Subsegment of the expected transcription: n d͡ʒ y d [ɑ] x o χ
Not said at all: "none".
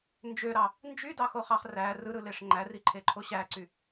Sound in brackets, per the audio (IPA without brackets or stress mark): ɑ